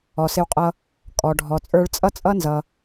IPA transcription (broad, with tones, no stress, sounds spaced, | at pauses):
ɔ˩ s ɪ˧ w qʼ ʌ˧ | kʼ ɔ˩ ɖʱ ɔ˩ t͡sʼ ə˞˧ ɭ t͡sʼ ʌ˥ t͡sʼ ʌ˥ n z ʌ˩